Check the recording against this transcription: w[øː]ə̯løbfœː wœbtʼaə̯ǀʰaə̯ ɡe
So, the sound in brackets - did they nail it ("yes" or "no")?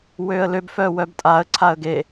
yes